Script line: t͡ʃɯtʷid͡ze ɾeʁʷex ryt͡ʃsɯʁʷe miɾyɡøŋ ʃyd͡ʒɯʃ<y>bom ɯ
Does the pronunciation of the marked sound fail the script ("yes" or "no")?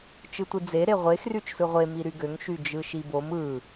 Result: yes